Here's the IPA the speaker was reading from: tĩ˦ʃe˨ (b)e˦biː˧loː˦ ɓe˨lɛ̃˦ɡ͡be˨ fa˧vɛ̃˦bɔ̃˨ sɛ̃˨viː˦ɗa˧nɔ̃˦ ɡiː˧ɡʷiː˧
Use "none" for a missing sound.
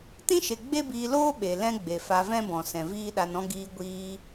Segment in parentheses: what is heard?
ɡ͡b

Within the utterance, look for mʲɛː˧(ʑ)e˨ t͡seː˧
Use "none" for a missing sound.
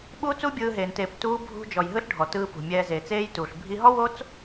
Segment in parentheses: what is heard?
z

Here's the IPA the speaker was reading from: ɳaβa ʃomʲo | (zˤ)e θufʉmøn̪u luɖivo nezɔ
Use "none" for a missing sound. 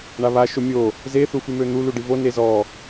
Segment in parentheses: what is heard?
z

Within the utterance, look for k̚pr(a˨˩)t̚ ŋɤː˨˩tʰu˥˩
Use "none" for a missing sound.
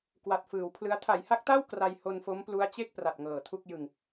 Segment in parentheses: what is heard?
a˨˩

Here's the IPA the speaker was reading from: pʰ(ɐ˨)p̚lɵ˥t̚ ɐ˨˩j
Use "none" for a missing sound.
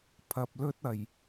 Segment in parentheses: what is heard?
ɐ˨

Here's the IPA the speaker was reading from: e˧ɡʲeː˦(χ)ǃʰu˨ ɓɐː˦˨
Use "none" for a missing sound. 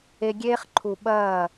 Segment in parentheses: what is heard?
χ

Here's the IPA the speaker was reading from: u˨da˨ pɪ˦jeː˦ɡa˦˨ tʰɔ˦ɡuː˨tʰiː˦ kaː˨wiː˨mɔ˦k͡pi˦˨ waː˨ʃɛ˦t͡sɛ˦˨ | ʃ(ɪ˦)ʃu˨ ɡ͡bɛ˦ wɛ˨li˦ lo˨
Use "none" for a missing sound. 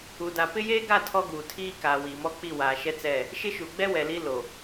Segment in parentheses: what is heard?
ɪ˦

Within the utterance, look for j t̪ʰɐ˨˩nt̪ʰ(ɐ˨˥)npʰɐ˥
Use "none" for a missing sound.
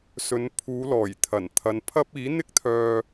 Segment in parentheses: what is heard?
ɐ˨˧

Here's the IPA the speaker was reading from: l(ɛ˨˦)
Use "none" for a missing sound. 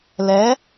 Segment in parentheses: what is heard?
ɛ˨˦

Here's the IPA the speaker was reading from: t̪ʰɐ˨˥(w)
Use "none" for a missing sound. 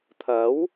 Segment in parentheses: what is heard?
w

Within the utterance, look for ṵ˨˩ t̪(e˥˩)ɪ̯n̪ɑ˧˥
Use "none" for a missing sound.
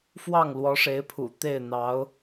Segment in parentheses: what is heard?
e˥˩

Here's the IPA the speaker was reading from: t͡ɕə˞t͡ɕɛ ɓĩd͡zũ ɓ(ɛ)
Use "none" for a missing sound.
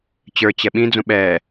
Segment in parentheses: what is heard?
ɛː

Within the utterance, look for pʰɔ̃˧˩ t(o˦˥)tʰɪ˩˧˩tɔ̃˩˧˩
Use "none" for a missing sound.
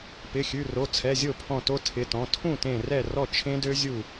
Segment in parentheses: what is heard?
o˦˥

